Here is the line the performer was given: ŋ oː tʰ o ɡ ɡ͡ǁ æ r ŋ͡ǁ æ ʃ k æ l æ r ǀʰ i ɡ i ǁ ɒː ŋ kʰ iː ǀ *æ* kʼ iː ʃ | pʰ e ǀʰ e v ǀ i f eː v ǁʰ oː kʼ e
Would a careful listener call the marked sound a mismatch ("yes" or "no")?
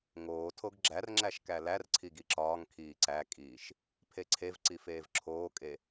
no